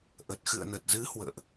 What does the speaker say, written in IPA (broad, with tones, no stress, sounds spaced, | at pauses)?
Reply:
ʔ ə˨˩ t̚ x ɨ̰˧˨ ə̯ n ə˨˩ t̚ z ɨ˨˦ h w ə̰ː˧˨ ʔ